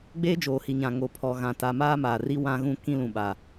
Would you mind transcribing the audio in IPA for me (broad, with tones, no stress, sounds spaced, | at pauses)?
ɡ͡b eː˦ d͡ʒ oː˨ h i˨ ɲ ã˨ ŋ o˨ pʰ ɔ˨ ɣ ã˨ t a˨ m aː˦ m aː˨ r i˦ w ã˦ ɣ ũ˦ k ĩ˦ l ũ˨ ɓ a˨